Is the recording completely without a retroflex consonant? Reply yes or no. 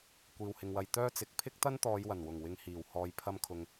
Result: yes